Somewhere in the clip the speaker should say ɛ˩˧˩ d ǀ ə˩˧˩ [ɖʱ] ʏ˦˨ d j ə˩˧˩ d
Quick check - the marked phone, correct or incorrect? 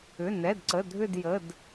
incorrect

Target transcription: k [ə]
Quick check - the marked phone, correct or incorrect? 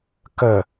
correct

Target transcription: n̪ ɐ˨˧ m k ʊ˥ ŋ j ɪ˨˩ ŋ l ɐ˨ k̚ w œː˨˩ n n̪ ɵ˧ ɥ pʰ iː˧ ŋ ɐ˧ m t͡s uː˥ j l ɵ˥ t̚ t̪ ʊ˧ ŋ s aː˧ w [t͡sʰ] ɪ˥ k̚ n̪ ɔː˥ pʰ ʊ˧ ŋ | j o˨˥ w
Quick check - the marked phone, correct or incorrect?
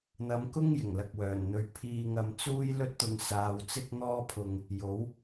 incorrect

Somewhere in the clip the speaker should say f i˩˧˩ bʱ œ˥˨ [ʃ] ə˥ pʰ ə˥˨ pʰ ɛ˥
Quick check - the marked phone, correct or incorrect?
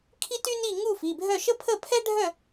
correct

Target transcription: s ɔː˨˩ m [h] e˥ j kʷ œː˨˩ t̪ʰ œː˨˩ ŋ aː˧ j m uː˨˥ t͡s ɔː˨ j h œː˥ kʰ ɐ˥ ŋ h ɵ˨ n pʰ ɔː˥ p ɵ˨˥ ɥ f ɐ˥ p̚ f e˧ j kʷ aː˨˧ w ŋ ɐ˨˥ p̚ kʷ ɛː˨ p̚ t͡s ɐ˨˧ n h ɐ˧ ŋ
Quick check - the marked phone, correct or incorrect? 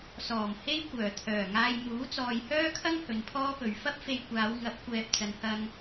correct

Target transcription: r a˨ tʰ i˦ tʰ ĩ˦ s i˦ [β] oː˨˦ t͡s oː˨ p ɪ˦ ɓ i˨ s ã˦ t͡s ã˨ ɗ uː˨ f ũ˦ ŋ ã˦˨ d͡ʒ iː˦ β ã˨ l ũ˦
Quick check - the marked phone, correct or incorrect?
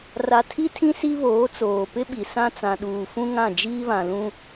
correct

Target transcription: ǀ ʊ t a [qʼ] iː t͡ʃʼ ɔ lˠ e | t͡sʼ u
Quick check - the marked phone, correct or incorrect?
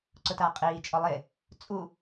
correct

